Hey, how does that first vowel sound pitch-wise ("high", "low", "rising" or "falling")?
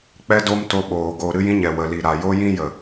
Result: high